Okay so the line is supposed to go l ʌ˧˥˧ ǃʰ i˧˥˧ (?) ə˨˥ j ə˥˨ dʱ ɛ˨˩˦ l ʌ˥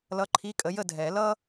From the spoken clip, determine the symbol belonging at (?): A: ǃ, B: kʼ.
B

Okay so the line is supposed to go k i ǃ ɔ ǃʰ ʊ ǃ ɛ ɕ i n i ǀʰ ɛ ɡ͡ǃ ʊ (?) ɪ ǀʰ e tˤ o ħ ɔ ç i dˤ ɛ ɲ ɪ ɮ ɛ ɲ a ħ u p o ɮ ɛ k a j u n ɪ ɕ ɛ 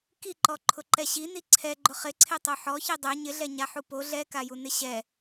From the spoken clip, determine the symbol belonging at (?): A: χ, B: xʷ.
A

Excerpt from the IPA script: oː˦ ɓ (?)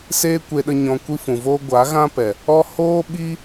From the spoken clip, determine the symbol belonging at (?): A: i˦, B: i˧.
A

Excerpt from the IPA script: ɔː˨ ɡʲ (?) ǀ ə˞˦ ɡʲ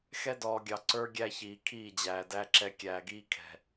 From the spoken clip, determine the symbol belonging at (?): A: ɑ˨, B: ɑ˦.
A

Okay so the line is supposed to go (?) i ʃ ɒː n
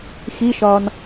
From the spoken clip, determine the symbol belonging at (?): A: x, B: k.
A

